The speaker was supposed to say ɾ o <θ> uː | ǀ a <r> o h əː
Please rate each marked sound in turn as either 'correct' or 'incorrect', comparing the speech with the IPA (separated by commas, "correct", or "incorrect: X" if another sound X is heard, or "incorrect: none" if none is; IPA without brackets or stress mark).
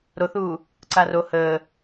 correct, correct